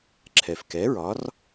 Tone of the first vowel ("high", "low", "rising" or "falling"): low